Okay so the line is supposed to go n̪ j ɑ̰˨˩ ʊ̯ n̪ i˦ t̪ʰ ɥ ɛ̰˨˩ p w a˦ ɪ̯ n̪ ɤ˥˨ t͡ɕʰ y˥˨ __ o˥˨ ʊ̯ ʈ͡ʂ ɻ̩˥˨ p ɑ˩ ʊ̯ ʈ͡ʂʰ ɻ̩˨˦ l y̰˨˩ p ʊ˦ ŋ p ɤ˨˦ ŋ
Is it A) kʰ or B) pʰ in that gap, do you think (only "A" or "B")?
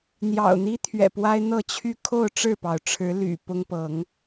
A